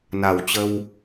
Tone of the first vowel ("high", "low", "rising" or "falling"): low